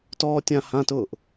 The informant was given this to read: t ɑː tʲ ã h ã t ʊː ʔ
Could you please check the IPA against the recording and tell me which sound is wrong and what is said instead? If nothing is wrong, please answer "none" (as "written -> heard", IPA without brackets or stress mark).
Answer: ɑː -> ɔː